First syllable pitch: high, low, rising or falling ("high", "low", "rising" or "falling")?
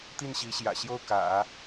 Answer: falling